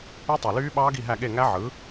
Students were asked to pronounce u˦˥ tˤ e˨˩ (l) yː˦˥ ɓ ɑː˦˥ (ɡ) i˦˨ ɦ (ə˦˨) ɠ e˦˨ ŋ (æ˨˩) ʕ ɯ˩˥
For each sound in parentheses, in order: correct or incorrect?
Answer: correct, correct, incorrect, incorrect

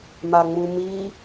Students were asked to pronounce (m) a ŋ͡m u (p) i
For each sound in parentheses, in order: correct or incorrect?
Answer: correct, incorrect

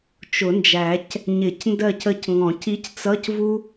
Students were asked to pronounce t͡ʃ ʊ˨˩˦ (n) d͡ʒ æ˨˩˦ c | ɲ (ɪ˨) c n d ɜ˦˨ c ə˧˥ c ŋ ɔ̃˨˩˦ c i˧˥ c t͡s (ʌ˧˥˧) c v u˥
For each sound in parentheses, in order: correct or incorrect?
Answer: correct, incorrect, correct

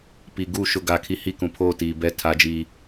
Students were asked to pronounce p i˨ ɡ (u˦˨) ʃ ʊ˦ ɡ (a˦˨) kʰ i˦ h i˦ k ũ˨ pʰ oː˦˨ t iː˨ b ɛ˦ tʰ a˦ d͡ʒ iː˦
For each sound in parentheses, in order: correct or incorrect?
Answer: correct, correct

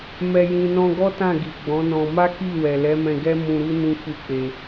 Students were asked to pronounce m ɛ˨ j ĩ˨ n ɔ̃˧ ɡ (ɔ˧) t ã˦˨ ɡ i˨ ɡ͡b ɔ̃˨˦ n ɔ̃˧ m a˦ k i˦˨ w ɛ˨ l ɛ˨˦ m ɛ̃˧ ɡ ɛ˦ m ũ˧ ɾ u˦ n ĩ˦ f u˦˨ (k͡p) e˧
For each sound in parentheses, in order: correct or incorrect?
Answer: incorrect, correct

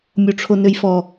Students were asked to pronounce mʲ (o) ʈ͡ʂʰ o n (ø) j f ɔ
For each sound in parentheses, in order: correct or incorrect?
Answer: correct, correct

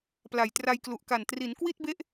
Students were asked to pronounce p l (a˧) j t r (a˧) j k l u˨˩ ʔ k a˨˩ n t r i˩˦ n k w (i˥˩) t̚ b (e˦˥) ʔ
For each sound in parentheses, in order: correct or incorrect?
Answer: incorrect, correct, correct, correct

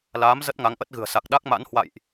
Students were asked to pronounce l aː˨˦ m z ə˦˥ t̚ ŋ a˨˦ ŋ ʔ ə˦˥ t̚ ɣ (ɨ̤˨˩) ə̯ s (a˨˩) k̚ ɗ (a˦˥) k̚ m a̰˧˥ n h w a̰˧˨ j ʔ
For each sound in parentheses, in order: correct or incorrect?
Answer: correct, correct, correct

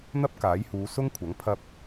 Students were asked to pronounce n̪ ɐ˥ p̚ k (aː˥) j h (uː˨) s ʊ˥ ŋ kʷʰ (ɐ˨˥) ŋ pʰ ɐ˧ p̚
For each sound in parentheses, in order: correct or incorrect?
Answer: incorrect, incorrect, correct

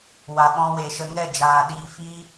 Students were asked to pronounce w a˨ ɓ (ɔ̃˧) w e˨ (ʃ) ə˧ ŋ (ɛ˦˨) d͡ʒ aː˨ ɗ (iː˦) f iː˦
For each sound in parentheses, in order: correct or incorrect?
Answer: correct, correct, correct, incorrect

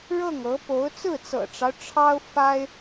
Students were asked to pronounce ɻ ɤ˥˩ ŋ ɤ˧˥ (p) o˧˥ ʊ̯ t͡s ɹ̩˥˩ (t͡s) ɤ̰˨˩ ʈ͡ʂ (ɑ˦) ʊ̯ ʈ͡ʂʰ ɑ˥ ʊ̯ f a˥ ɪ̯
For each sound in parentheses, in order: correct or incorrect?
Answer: correct, correct, correct

